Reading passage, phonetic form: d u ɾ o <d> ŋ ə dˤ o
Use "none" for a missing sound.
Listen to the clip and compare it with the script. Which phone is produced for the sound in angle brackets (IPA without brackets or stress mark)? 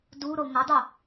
none